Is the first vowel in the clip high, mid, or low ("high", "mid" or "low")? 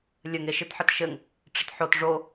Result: mid